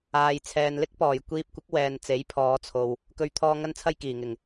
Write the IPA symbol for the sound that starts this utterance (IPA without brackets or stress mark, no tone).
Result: aː